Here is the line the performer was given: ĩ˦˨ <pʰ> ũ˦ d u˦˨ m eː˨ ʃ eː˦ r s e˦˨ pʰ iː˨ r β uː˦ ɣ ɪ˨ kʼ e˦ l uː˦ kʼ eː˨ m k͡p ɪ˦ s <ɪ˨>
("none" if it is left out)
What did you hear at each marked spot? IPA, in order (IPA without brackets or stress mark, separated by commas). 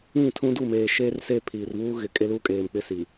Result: tʰ, i˨